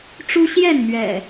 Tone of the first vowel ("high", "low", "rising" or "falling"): high